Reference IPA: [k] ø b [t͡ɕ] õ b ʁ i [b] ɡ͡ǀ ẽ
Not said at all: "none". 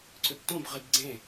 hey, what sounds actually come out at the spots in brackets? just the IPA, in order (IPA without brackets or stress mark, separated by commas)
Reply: ǀ, t, b